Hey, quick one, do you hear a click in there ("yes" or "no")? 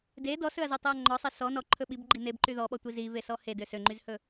yes